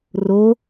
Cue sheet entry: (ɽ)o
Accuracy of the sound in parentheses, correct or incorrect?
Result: incorrect